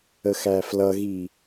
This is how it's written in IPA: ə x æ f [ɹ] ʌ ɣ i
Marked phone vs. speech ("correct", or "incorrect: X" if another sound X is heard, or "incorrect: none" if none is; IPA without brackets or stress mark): incorrect: l